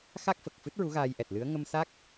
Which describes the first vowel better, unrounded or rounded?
unrounded